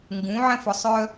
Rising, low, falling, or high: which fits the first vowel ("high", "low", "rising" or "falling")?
rising